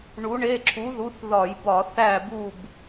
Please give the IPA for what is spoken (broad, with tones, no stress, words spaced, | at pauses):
ɳu˨˥ɳe˧˥˧ ǁʰu˨˥ðu˨˥θðɒ˧˩˧jbɒ˧˩˧ θæ˥˨bu˥˨b